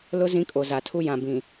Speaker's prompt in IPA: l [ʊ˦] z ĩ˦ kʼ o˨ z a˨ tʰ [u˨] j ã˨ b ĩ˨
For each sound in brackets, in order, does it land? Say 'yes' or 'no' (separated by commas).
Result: yes, no